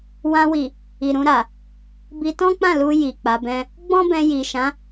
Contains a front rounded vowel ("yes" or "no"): no